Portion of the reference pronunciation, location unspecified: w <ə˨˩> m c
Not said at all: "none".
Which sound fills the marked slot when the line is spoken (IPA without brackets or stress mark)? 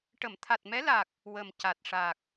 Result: ə˨˩